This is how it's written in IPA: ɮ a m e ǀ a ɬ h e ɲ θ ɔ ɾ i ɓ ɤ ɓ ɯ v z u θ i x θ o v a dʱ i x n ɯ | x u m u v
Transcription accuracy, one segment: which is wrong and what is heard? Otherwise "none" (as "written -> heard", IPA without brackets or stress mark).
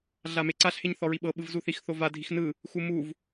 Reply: ɾ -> ɹ